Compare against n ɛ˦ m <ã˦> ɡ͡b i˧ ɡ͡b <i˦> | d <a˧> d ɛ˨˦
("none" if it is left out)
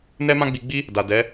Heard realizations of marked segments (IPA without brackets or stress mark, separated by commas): ã˦, i˦, a˨